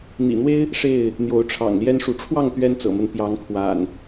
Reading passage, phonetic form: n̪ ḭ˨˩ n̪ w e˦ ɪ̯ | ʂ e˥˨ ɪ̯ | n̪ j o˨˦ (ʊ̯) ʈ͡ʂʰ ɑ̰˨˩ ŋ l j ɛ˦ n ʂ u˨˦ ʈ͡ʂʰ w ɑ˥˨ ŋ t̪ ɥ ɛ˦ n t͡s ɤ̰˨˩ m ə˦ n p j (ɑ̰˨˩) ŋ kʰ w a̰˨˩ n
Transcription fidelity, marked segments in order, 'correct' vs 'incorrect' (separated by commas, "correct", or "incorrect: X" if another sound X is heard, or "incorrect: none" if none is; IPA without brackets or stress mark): correct, incorrect: ɑ˨˦